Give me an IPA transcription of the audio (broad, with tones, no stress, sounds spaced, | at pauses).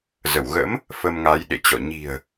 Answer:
z ə˧˩ w ɣ ə̰˧˥ m | f ə˧ m ŋ a˨˦ j ɗ ḛ˧˨ t͡ɕ ɔ̰˧˨ ɲ i̤˨˩ ə̯